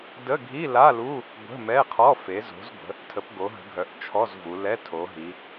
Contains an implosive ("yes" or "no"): no